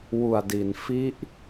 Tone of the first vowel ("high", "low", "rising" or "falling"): low